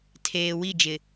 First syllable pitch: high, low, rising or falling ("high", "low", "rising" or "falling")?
low